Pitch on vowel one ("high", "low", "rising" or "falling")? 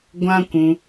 high